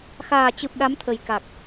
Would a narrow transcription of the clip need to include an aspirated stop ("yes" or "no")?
yes